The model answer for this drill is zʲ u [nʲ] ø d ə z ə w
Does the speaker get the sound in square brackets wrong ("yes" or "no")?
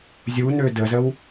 yes